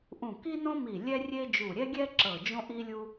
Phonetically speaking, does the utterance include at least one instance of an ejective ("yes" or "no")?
no